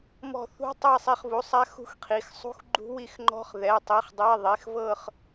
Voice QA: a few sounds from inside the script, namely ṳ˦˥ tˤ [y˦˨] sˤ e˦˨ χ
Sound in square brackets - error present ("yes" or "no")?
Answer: yes